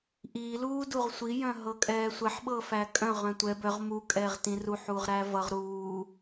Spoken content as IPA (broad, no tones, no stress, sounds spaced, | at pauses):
ʔ i l uː d u ʁ sʷ i j œ̃ ɦ ɤ kʼ ɛː sʷ ɛ ħ ɓ ɤ f æ kʼ œ̃ ʁ œ̃ tʷ ɛ b œ ʁ m u kʼ ɛː ʁ t ĩ r u ħ uː ʁ ɾ æ v ʌ ʁ ɾ uː